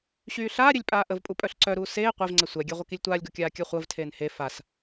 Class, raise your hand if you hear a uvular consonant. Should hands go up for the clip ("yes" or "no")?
yes